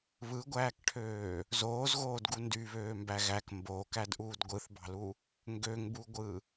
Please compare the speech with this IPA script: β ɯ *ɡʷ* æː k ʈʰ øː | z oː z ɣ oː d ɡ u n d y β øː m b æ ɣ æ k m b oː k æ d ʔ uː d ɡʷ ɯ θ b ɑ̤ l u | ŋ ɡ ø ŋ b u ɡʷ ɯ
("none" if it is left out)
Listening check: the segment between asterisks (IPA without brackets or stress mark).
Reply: ɡʷ